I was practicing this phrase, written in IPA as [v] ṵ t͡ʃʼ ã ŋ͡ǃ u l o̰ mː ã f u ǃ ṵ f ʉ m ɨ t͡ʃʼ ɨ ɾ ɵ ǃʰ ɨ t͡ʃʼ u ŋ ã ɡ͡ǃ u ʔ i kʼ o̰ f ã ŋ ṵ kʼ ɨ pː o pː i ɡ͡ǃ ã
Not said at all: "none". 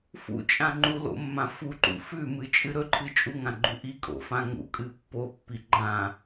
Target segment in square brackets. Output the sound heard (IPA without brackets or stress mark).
f